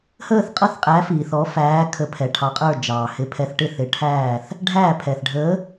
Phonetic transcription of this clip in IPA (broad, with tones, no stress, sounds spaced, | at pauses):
h əː˥˩ θ qʼ ʌ˥˩ θ qʼ æ˨˥ f iː˩ θ ɔ˨˥ f æː˨˥ kʰ ə˨˥ pʰ ɛ˩ ʈʰ ɑ˨˥ qʼ ə˞˥˩ d͡ʒ ɑː˩ h ɪ˨˥ pʰ ɛ˨˥ θ ʈ ɪ˥˩ θ ɪ˨˥ ʈʰ æː˥˩ θ | ɖʱ æ˥˩ pʰ ɛ˩ θ ɖʱ əː˨˥